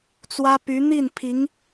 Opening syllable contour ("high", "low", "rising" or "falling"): high